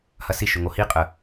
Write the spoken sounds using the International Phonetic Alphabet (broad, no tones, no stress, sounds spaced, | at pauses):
h ɐ s i ʃ ɵ ŋ o h i qʼ ə